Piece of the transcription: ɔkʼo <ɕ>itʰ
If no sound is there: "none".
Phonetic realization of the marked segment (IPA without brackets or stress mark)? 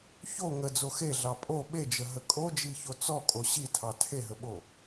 ɕ